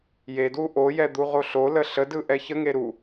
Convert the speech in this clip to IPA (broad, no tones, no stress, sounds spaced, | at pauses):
j e d w u ʔ o j ɛ d̪ u ʁ o ɬ o l ə ɬ ə d ɯ ʔ ɛ ç ə ŋ e ɾ u